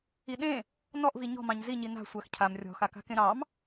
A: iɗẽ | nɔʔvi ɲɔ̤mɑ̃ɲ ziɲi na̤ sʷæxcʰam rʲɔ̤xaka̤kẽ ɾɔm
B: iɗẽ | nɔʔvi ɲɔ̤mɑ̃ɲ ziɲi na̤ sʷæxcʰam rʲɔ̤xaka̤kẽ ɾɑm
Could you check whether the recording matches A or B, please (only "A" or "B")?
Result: B